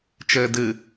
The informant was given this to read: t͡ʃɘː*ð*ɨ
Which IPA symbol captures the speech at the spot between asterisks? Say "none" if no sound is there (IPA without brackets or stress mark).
d